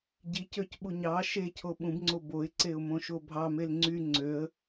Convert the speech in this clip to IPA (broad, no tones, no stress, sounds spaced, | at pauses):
ɟ i c ø c ɓ u ɲ ɑ ʃ e cʰ o ɓ ũ b ŋ͡ǀ o b o ɪ̯ ǀ e ʊ̯ m õ ʃ o bʱ ɑ m e l ŋ͡ǀ y ŋ͡ǀ ø ə̯